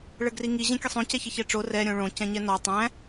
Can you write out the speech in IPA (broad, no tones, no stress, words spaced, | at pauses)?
ɭəɡriŋi ʑɛ̃kʲəsˤõ cɛçəçɛʈ͡ʂo rɛ ɾʲõɭõ cɛ̃ɲɛnɔ tˤæ̃